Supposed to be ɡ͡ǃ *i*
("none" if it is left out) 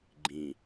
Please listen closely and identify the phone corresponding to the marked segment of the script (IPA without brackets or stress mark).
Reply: ĩ